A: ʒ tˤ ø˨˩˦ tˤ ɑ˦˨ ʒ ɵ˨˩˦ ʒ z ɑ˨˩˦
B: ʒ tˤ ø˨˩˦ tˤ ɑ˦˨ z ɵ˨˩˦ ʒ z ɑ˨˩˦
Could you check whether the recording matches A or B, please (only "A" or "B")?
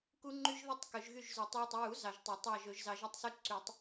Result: A